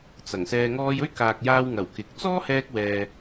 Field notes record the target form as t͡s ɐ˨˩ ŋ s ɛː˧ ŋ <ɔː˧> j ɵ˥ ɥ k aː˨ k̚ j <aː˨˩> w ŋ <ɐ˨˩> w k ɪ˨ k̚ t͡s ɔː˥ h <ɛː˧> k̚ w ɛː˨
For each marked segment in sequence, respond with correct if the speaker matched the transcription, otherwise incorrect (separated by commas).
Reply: correct, incorrect, correct, correct